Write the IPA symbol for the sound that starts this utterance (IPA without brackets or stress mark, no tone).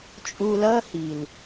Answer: t͡ʃʼ